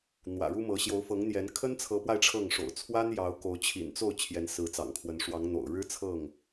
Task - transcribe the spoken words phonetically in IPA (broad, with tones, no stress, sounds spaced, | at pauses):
n̪ w ä̰˨˩ ɻ u˦ m ɤ˨˦ ɕ j o˨˦ ʊ̯ f ɤ˨˦ ŋ n̪ j ɛ˨˦ n kʰ ə˦ n t͡sʰ ɤ˨˦ p w a˧ ɪ̯ ʈ͡ʂʰ ɤ˥˨ ŋ ʂ o̰˨˩ ʊ̯ t͡sʰ w a˦ n j ɑ˨˦ ʊ̯ k o˨˦ ʊ̯ t͡ɕʰ ḭ˨˩ n t͡s o˥˨ ʊ̯ t͡ɕʰ j ɛ˨˦ n s ɹ̩˨˦ t͡s ɑ̰˨˩ ŋ kʰ w ə˨˦ n ʂ w ɑ˨˦ ŋ n̪ o̰˨˩ ʊ̯ ɻ ɻ̩˦ t͡sʰ ɤ˥˨ ŋ